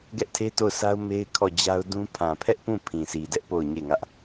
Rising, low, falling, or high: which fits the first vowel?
high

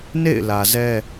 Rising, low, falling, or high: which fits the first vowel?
falling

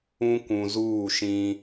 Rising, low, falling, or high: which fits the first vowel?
high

